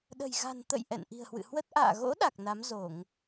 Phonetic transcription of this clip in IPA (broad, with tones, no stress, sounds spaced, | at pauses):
ɗ ə̤˨˩ j ɣ a̤˨˩ n t̪ ə̰˧˨ j ʔ ɛ̰˧˨ n ʔ i̤˨˩ ə̯ h w ɨ̰˧˨ h w ə˦˥ t̚ ʔ a̰ː˧˨ ɣ o̰˧˥ ɗ a˨˩ k̚ n a˨˦ m z o˧˩˨ ŋ